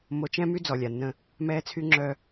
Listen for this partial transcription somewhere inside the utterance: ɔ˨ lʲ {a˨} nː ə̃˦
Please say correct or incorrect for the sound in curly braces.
correct